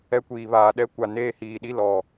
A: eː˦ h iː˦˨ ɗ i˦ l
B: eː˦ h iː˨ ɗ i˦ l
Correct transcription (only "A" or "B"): B